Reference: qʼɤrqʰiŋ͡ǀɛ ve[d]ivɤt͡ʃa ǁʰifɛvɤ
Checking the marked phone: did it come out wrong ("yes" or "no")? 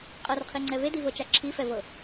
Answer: no